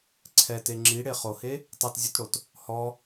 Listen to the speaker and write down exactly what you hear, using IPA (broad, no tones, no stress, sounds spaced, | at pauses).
ǀʰ ɛ t e ŋ͡ǁ i ɽ e χ o h e | tˤ e t zʲ u t ɽ o t | h ɔ